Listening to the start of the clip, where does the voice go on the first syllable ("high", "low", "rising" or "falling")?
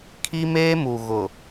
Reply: high